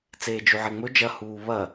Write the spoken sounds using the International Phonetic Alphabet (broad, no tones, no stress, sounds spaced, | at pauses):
t͡s eː d͡ʒ ʉ ʕ e ŋ͡m ɵ d͡ʒ ɐ h uː β ɐ